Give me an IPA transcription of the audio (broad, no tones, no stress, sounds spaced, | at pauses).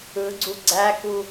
ɯ ɡ͡ǀ u ɡ͡ǀ æ k u